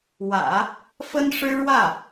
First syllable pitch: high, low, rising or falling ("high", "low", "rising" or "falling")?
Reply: low